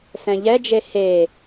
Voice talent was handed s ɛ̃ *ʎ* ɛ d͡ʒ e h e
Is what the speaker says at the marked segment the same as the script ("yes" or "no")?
yes